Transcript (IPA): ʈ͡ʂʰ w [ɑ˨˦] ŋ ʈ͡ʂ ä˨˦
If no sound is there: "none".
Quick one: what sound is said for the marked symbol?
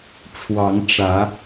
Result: ɑ˨˦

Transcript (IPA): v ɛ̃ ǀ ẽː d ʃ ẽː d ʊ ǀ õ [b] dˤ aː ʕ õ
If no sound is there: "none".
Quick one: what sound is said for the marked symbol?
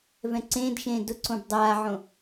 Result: b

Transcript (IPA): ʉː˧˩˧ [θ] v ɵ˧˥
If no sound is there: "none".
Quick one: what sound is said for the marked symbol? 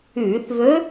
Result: θ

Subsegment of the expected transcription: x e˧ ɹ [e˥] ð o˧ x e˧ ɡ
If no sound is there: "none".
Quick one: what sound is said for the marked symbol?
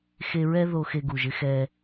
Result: ɛ˥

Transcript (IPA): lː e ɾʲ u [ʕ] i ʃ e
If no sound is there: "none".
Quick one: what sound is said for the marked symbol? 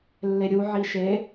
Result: ʕ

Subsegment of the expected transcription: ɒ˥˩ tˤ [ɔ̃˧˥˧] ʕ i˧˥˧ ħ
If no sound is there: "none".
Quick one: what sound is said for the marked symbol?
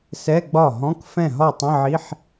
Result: ə̃˧˥˧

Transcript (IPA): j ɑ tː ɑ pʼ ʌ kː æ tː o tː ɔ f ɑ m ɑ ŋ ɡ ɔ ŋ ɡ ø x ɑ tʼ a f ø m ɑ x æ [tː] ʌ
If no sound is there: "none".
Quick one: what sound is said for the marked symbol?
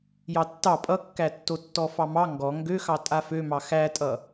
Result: tʼ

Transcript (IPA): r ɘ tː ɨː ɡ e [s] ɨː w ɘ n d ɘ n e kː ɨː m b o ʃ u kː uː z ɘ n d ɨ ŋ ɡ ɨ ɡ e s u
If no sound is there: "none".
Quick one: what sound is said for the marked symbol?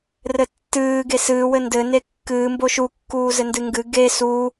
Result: s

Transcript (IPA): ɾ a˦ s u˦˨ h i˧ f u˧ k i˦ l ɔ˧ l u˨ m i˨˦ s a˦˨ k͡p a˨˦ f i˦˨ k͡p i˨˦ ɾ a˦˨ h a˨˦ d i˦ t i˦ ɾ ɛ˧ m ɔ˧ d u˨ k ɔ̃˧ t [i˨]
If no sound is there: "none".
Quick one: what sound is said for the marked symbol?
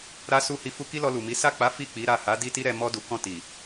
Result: i˨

